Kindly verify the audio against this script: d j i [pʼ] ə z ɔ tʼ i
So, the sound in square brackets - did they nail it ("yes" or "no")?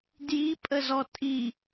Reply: yes